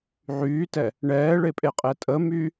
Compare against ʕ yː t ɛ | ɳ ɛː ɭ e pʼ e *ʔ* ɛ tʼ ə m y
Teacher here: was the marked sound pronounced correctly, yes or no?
no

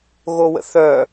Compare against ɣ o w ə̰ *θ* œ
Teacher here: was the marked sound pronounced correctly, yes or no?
yes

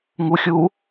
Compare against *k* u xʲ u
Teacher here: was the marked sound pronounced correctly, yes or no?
no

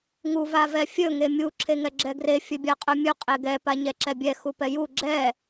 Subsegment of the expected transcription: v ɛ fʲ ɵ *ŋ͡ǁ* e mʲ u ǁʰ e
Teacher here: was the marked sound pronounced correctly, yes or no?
no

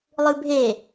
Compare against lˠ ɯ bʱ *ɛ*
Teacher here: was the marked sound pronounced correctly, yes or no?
no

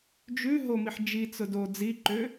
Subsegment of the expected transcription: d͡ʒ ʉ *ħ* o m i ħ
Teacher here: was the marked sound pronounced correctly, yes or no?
no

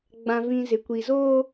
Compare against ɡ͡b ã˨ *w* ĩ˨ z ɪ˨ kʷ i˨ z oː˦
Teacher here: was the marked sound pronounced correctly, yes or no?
no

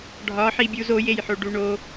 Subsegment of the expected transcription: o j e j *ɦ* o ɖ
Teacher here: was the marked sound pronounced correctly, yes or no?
no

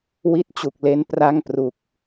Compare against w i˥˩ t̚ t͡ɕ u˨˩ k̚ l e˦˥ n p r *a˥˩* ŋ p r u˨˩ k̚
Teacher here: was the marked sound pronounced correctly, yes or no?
yes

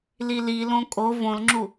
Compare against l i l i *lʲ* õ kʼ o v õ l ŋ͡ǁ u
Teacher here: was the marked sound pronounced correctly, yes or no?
no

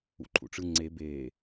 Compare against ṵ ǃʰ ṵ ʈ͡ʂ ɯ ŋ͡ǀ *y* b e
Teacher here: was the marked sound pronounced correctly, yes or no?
no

